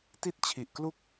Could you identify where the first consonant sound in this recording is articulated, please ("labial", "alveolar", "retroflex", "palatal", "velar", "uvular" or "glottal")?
alveolar